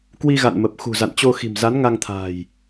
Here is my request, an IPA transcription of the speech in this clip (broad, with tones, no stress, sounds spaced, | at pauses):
k w i˧ ɣ a̰˧˨ n m ə˨˩ p̚ x ṳ˨˩ z a̰˧˨ n t͡ɕ o˧ x i̤˨˩ m z a˨˦ n ŋ a˧ ŋ t̪ʰ a̤ː˨˩ j